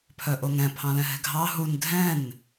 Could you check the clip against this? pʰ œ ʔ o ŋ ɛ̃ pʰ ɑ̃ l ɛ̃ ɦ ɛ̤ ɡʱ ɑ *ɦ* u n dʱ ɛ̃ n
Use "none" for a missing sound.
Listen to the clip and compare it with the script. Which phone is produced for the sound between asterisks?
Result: ɦ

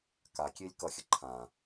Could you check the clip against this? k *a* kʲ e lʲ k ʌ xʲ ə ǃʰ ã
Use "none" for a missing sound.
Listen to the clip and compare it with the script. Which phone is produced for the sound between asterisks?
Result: a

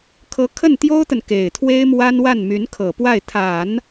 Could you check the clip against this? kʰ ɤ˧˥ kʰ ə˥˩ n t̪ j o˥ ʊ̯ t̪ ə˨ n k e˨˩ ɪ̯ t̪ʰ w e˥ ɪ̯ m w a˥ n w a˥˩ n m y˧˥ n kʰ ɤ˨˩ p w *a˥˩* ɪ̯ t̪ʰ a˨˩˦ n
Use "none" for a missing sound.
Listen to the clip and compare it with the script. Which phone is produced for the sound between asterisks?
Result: a˥˩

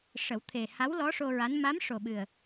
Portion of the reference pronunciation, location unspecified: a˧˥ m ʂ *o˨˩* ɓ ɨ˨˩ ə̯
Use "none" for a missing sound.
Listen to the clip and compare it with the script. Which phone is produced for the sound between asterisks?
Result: o˨˩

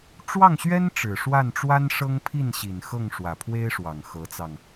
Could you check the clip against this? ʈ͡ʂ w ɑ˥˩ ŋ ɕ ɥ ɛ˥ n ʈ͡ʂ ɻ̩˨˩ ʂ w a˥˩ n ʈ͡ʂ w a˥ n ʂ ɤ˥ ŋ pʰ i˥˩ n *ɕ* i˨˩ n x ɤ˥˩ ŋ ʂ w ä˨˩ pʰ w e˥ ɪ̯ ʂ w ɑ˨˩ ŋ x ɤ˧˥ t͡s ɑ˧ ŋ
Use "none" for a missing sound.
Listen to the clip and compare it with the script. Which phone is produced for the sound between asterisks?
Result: ɕ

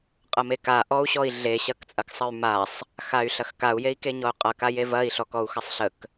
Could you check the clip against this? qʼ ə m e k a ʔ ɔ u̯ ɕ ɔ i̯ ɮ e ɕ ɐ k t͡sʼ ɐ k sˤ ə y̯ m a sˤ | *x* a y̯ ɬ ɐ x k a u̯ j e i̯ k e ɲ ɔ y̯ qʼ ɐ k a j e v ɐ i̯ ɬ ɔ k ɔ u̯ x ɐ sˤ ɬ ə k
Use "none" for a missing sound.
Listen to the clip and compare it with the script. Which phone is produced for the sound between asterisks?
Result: x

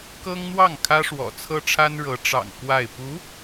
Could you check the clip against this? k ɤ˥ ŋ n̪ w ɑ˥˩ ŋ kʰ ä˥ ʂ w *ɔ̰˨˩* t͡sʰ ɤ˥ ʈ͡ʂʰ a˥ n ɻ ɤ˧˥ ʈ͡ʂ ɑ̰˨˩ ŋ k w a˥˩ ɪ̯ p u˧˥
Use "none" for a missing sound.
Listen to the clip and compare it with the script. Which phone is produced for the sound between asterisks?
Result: ɔ̰˨˩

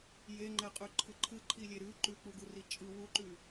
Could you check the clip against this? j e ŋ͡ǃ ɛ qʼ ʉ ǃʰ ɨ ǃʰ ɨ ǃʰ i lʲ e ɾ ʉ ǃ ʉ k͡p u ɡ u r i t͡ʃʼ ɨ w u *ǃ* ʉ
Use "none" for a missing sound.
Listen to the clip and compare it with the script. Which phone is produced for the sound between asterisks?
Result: ǃ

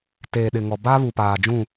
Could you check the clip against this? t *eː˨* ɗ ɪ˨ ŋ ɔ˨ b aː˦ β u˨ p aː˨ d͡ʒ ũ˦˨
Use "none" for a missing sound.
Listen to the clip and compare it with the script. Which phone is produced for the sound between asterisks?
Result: eː˨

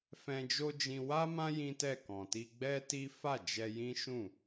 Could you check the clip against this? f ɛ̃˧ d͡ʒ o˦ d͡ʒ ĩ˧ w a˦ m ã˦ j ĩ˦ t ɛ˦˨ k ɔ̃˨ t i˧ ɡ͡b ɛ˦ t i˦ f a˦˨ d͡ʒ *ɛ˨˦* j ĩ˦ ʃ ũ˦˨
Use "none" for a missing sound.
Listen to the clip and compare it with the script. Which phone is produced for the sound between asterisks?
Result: ɛ˧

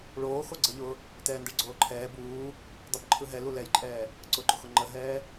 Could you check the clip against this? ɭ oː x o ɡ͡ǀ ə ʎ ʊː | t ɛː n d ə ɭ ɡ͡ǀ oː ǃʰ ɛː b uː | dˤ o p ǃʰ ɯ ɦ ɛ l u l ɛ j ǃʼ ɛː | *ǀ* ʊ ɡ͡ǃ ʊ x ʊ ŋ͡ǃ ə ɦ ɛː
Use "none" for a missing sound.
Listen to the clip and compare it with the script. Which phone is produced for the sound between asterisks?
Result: ǀ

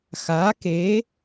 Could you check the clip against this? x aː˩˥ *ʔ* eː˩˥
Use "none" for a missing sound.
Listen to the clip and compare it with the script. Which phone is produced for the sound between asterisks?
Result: k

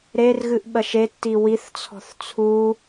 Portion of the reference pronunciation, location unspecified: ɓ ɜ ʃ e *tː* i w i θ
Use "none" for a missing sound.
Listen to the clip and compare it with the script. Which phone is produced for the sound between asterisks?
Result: tː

